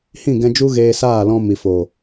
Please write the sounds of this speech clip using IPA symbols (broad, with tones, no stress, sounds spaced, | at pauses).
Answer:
h ĩ˦˨ ɡ ɛ̃˧ d͡ʒ u˦ ɣ eː˧ s aː˦˨ l ɔ̃˧ m i˨ f oː˨